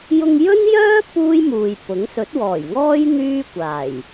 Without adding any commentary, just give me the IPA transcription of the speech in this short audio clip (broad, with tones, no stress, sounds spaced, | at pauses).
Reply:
j ʊ˧ ŋ j ɵ˥ n j œː˥ p uː˥ j m uː˨ j p ʊ˨˥ ŋ s ɵ˨˥ t̚ w ɔː˨˩ j ŋ ɔː˥ j n̪ yː˥ kʷ aː˨˩ j